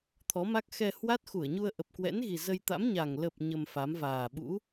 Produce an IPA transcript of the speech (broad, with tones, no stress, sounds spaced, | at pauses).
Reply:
t̪ʰ ɔ˨˦ m a˦˥ k̚ x ɛ˧ h w a˦˥ t̚ x u˧˩ ə̯ ɲ u˧ ə̯ ʔ ə˨˩ p̚ k w ɛ̰˧˥ n ɣ i˨˩ z ə˧ j t̪ a̰˧˥ m ɲ a˨˩ ŋ l ə˨˩ p̚ ɲ ə˧ m f a˨˦ m v aː˨˩ ɓ ṵ˧˥